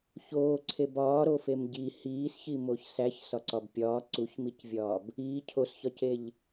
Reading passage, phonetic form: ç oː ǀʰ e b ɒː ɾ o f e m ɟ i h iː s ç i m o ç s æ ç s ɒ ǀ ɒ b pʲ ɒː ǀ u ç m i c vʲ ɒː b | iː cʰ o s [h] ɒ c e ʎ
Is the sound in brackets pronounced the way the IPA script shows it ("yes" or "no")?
no